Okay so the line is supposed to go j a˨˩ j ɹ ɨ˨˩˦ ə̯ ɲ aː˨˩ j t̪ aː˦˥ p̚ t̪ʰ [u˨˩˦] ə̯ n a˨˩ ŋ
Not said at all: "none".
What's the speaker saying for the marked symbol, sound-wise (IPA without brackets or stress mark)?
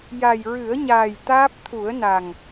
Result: u˨˩˦